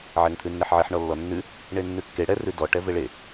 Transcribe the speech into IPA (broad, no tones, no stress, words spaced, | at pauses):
ʕɛŋt̪ʰʉnːɛħʕeħ ɳɔlːɔnːʉ | ɳenːʉkːe ɽɛ rʉdɔ ʈɛveɭe